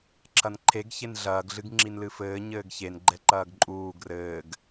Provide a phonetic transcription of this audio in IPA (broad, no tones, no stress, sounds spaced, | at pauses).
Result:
ǁʰ ɐ n ǃʰ e ɡ ç e n ɮ ɐː ɡ ɮ ɨ ɡ ŋ͡ǁ i n l ɨ f ɘː ɲ ɘː ɡ ç e n ɡ͡ǃ ɛ ǃ ɐː ɡ ǃʼ uː ɡ r ɘː ɡ